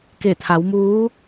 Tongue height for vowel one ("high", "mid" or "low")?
mid